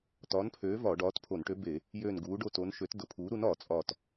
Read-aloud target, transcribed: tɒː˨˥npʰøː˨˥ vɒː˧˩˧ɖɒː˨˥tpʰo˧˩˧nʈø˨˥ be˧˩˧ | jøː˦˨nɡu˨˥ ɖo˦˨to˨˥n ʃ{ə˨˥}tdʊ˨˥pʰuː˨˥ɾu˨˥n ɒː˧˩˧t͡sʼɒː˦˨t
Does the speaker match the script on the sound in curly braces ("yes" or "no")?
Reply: no